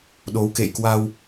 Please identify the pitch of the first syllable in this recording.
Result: rising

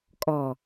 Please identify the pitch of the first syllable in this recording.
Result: low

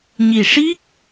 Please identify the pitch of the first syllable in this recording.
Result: low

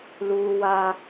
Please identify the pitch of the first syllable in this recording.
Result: high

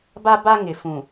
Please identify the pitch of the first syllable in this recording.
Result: high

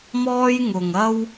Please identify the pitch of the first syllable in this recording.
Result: high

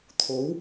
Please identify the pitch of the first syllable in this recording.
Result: rising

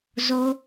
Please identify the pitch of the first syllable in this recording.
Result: high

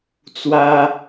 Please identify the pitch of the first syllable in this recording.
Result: high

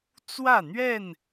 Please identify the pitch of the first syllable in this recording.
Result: falling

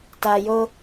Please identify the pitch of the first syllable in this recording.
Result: low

